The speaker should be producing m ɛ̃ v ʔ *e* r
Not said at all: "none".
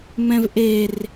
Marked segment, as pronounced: e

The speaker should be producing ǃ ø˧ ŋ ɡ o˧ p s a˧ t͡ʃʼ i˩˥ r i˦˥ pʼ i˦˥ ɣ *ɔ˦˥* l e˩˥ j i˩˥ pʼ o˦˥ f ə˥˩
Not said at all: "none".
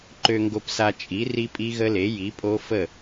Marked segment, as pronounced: ə˦˥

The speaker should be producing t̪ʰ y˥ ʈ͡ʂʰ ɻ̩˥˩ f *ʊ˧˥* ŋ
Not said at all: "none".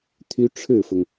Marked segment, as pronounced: ʊ˩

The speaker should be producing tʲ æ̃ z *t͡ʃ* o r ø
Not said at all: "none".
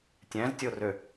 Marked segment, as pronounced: tʲ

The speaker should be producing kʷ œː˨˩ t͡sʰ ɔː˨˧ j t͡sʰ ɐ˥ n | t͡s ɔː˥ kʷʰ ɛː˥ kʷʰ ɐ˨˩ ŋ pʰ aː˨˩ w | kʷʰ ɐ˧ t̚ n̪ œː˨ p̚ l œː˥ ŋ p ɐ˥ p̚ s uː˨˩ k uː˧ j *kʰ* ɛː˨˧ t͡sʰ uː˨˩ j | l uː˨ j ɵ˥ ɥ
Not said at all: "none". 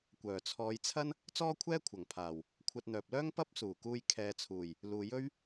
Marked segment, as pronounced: kʰ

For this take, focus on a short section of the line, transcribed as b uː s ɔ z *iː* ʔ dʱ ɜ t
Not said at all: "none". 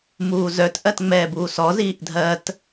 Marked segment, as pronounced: iː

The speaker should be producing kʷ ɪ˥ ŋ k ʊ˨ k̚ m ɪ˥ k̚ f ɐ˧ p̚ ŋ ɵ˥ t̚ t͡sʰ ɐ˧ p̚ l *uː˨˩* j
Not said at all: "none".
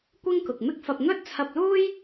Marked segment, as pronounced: uː˥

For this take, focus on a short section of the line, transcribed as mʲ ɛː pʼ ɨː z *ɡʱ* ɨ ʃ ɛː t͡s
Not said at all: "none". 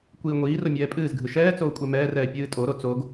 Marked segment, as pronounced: ɡʱ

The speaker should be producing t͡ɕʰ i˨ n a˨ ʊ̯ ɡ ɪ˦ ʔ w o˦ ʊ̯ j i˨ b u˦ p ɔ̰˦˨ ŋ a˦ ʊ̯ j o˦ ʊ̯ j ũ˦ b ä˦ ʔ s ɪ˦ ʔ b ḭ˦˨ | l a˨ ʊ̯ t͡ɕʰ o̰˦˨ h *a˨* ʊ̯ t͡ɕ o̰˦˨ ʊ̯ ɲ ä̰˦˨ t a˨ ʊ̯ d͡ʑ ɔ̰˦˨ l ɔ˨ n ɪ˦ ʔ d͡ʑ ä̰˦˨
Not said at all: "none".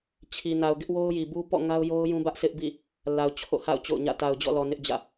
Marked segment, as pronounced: a̰˦˨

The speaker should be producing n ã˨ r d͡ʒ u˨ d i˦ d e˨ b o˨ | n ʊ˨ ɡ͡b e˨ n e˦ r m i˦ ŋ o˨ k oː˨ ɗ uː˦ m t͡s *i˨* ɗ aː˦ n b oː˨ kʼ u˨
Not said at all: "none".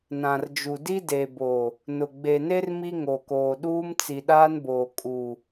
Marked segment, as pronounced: i˨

